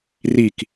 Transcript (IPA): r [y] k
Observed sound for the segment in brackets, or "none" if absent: i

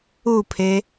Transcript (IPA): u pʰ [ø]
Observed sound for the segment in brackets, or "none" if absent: e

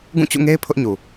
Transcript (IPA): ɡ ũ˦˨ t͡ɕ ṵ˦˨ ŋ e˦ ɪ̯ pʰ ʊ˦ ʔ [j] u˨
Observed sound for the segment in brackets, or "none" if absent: ɲ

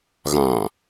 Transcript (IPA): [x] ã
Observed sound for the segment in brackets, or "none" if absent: ɣ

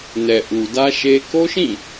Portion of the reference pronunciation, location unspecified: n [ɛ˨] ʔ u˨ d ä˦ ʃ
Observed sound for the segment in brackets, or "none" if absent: ɛ˨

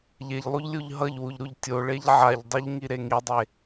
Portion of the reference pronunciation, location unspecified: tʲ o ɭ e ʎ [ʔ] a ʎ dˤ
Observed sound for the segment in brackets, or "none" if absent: ʕ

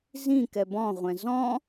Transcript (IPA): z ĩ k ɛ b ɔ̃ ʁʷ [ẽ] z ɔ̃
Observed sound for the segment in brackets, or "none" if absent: ɛ̃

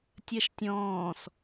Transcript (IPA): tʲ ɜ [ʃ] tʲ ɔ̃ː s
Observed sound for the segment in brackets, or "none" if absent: ʃ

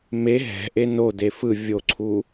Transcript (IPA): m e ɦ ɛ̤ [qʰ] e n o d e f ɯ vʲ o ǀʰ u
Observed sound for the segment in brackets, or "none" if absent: ʔ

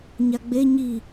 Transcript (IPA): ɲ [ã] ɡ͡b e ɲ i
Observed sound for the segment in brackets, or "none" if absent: a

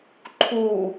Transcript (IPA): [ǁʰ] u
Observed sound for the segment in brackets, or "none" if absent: ǃʰ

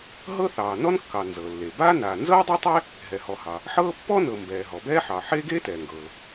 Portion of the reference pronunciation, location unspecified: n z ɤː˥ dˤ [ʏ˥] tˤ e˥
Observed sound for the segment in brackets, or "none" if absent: ɛ˥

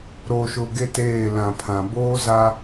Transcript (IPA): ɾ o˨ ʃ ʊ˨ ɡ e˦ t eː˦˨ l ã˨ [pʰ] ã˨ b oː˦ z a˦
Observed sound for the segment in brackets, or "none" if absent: pʰ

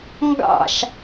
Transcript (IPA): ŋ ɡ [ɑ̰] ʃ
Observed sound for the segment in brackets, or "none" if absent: ɑ̰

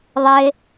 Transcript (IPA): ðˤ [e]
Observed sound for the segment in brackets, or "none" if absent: e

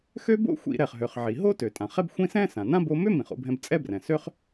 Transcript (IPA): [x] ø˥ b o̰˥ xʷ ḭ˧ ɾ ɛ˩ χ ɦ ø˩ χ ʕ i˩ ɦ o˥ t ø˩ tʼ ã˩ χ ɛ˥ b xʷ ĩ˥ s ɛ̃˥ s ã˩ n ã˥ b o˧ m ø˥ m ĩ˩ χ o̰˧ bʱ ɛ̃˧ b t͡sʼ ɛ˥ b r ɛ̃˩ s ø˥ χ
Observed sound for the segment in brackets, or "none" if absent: x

